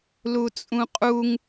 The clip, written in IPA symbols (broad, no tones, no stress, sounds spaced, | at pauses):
l u t͡sʼ ũ qʼ u ŋ